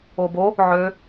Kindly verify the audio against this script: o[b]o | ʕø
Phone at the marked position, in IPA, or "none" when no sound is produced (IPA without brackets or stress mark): b